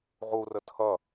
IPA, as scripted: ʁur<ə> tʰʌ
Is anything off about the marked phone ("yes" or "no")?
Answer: no